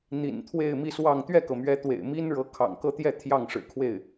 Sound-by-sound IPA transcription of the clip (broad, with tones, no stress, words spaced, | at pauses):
n̪ḭ˨˩nt̪ʰwe˥˧ɪ̯mi˥˧swɑ˥˧ŋ t̪ɥɛ˥˩kɤ˩mɥɛ˧˥ t̪wḛ˨˩ɪ̯mi˥nɻɤ˧˥ kʰɑ̰˨˩ŋkɤ˥˧t̪jɛ˥˧ t̪ʰjɑ˥˩ŋʂɻ̩˨˩kʰwe˥˩ɪ̯